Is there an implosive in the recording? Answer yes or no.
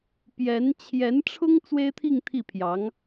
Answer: no